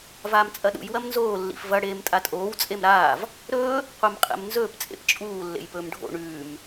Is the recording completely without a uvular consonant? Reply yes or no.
no